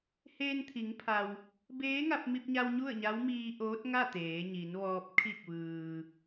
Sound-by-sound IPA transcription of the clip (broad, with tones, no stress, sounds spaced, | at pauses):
h eː˧ n t̪ʰ i˩˧ ŋ pʰ a˩ w | b eː˧˥ ŋ a˧ p̚ m i˧ p̚ ɲ a˧ w ɲ u˥˨ ə̯ ɲ a˧˥ w m iː˧ ʔ oː˧˥ t̚ ŋ a˥˨ t̪ eː˩˧ ɲ i˩˧ n ʋ ɔː˧ p̚ kʰ i˧˩ k̚ ʋ ɯː˩